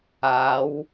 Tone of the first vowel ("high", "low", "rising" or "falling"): rising